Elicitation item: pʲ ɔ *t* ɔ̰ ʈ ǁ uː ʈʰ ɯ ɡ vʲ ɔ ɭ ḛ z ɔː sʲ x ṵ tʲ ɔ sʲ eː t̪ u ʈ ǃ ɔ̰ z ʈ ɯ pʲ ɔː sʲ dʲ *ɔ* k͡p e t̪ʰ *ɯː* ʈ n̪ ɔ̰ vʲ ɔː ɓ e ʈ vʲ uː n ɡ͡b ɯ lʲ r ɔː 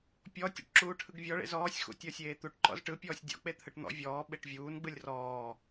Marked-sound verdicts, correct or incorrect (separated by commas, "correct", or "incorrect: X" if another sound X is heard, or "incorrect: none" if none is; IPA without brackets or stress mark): incorrect: tʲ, incorrect: ɔ̰, incorrect: ɯ